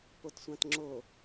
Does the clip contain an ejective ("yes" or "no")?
no